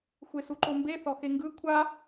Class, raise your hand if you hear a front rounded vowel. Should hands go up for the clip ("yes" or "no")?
no